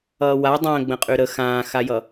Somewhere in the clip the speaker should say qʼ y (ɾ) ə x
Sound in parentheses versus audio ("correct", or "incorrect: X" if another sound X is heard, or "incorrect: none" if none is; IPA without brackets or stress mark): correct